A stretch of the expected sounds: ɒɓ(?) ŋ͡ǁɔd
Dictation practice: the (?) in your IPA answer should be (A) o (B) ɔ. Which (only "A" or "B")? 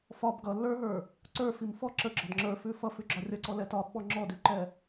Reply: B